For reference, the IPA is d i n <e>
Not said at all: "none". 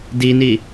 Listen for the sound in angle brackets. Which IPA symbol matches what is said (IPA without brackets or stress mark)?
i